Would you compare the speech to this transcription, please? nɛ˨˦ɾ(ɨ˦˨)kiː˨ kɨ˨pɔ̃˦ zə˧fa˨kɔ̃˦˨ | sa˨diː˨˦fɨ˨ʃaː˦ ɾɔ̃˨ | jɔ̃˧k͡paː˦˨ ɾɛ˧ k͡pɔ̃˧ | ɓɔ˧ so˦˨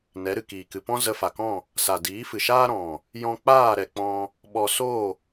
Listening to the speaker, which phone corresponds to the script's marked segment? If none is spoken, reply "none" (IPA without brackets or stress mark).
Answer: ɨ˨